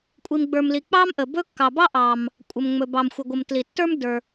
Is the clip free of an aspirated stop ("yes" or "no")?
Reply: yes